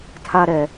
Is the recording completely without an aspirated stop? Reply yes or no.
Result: no